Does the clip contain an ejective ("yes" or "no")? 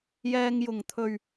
no